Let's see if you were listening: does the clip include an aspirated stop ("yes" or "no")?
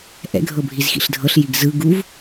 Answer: no